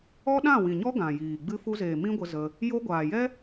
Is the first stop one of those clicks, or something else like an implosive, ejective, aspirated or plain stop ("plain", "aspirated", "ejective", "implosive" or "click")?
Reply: implosive